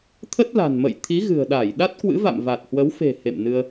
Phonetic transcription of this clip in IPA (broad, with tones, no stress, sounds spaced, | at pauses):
t̪ʰ ə˦˥ t̚ l a̤˨˩ n m ə̰˧˨ j t̪ʰ i˨˦ ɣ ɨ̤˨˩ ə̯ ɗ a˧˩ j ɗ a˦˥ t̚ k w ɨ̰˧˥ v a̰˧˨ m v a˨˩ t̚ h w ə˨˦ w f e̤˨˩ h ḛ˧˨ m n ɨ˧ ə̯